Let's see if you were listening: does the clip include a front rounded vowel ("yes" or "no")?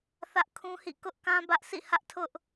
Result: no